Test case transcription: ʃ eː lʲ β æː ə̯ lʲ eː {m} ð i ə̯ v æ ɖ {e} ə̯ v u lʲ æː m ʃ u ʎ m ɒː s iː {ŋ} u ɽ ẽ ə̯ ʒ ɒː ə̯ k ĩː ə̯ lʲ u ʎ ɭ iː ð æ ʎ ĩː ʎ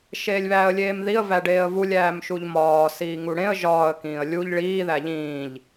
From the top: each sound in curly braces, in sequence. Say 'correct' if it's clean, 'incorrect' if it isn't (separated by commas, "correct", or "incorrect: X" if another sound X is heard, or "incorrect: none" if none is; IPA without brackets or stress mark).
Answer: correct, incorrect: eː, correct